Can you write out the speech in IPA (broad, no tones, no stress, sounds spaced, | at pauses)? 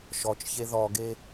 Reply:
ʃ ɔ t͡ʃ ç e ð ɔ ɡ e